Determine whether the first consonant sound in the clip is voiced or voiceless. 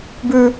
voiced